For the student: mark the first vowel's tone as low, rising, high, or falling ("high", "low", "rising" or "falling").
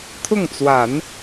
falling